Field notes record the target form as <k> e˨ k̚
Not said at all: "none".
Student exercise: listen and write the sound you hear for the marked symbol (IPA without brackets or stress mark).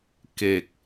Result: k